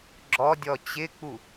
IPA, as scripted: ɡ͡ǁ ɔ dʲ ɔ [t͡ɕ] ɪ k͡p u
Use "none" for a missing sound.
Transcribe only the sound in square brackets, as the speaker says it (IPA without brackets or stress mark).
t͡ɕ